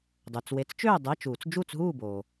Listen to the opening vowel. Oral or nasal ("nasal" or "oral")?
oral